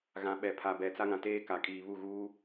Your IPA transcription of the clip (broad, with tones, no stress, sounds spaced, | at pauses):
ɣ ã˨ ɓ ɛ˨ pʰ a˨ b ɛ˨ t͡s a˦ ŋ ã˨ t eː˦ k a˨ kʼ iː˨ β u˦˨ ɣ uː˦